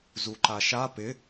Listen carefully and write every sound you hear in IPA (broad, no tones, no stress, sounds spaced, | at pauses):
z u ǃ a ʃ a p ɪ